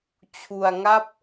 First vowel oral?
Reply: yes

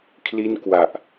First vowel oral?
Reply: yes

